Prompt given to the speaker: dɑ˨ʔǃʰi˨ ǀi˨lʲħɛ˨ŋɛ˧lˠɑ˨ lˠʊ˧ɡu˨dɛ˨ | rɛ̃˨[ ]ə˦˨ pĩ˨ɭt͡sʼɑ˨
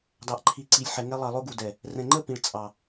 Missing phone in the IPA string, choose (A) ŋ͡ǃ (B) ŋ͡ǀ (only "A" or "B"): A